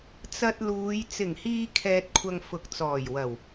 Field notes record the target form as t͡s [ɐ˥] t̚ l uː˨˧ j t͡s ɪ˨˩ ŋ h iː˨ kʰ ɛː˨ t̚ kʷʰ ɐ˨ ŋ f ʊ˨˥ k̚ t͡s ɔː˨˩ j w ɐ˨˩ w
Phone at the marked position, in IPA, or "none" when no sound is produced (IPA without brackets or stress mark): ɐ˧